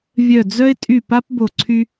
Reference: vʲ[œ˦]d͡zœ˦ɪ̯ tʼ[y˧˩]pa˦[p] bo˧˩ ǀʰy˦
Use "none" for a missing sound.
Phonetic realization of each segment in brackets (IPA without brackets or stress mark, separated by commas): œ˧˩, y˧˩, p